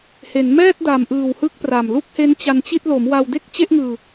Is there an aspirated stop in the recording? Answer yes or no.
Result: no